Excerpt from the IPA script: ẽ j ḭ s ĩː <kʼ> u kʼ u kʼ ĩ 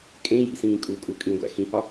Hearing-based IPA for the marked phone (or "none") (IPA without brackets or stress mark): kʼ